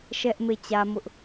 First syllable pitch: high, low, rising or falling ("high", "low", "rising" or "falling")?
high